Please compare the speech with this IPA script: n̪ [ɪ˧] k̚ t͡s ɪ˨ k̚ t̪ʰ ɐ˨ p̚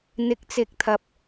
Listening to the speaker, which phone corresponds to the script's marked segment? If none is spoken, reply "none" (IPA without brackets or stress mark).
ɪ˨˥